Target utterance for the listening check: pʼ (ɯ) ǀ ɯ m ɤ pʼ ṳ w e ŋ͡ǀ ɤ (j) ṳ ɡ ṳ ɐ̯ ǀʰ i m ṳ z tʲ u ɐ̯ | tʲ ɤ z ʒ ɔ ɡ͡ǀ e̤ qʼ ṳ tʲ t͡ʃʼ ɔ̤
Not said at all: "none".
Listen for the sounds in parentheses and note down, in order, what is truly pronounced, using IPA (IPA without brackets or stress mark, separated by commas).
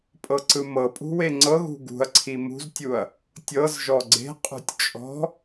ɤ, ɣ